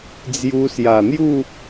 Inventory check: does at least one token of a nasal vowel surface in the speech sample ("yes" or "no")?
no